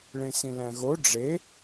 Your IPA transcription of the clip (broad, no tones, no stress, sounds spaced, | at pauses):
ɭ ẽ s ĩ l æ̃ ɣ o ɖ͡ʐ e